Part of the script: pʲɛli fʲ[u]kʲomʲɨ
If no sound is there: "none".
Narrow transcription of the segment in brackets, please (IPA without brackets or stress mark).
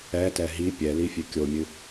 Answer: ø